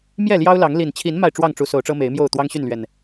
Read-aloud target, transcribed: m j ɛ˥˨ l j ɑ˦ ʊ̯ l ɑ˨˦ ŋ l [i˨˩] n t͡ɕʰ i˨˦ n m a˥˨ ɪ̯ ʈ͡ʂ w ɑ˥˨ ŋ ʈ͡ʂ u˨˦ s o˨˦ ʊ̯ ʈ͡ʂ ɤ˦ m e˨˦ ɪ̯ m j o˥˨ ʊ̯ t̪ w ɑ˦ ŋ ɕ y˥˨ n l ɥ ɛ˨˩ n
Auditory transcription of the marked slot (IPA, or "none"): i˨˩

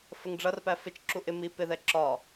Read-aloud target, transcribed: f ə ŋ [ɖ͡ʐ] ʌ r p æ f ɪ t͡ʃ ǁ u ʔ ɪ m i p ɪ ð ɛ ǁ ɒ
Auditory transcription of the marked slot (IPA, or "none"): ɖ͡ʐ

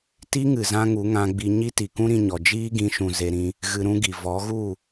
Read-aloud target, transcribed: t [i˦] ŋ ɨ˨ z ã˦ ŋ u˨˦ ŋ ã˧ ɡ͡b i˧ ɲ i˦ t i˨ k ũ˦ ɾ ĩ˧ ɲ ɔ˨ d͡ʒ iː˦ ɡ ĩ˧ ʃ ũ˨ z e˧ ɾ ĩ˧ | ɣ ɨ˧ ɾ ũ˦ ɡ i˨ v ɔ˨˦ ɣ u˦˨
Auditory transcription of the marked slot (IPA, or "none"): i˦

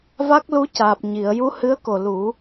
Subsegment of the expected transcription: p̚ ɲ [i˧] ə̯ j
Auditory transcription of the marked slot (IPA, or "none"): i˨˩˨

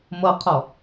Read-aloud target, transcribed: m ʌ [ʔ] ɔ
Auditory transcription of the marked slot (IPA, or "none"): qʰ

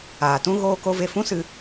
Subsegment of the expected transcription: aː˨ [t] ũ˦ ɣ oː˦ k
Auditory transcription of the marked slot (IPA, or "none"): t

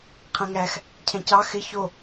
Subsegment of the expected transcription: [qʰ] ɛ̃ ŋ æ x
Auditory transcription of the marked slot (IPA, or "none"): qʰ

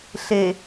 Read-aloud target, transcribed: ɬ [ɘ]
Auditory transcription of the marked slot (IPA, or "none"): e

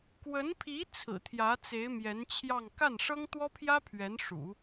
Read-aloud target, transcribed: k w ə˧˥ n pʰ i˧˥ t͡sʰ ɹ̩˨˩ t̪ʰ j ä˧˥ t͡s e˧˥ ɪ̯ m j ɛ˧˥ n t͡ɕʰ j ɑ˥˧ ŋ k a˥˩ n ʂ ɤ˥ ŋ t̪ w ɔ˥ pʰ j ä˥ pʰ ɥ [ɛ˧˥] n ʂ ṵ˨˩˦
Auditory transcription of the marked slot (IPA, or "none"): ɛ˧˥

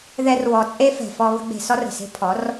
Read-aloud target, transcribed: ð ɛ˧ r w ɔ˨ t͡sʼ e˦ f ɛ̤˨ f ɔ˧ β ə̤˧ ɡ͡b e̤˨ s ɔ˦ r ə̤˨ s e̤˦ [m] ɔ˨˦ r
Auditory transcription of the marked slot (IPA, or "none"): pʰ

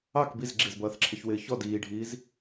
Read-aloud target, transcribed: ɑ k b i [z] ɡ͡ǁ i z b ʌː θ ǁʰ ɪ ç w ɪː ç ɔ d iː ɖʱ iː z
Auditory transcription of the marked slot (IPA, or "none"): z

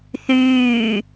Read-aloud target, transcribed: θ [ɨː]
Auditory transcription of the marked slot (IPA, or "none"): yː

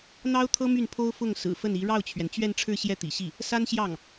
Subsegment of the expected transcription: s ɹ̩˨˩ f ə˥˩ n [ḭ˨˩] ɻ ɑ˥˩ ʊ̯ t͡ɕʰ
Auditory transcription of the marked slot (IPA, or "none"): i˧˥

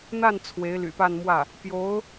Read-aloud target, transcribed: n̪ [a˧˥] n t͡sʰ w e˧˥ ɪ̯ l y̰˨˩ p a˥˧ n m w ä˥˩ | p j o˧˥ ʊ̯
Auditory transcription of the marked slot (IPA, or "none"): a˥˩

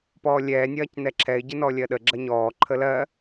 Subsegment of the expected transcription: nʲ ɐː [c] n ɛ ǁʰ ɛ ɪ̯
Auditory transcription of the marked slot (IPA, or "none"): c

